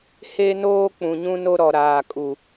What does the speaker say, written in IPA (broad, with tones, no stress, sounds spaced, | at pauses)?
h e˦ n oː˦ k͡p ũ˨ ɲ ũ˦ n o˦ ɾ ɔ˨ ɾ aː˨ kʼ u˨